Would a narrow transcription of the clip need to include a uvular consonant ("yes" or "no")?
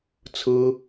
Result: no